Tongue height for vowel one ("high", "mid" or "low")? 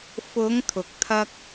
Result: high